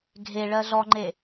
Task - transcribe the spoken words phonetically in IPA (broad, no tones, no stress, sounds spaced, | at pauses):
ɡʱ e ɭ ɜ ɮ ɔ ŋ͡ǃ e